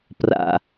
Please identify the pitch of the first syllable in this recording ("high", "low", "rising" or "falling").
low